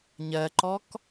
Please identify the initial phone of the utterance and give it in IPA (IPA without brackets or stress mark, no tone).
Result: ɲ